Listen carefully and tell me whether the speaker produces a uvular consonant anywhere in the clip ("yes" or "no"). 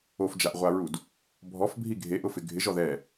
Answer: yes